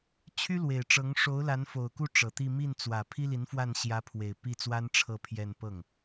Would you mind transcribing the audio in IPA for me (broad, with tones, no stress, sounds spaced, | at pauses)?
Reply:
t͡ɕʰ y˥ l w e˨˩ ɪ̯ ʈ͡ʂ ɤ˧˥ ŋ ʂ o˧˥ ʊ̯ l a˧˥ n f o˨˩ ʊ̯ k u˥˩ ʈ͡ʂ ɤ˨˩ t̪ i˥˧ m i˥˩ n t͡s w ä˨˩ pʰ i˥ l i˧˥ n f w a˥˩ n ɕ j ä˧˥ pʰ w e˨˩ ɪ̯ p i˥˩ t͡s w a˥ n ʈ͡ʂʰ ɤ˥˧ pʰ j ɛ˥˧ n p ɤ˥˩ ŋ